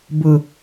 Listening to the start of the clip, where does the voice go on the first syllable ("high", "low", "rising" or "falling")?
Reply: low